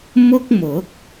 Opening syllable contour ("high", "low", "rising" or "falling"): high